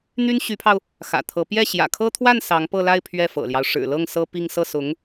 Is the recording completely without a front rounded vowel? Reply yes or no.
no